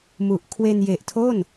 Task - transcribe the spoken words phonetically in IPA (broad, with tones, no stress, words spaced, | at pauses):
mu˨˩ʔkʰwe˧n je˨˩ʔtʰo˥˩n